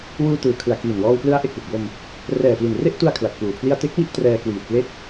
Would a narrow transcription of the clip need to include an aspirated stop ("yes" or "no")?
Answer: yes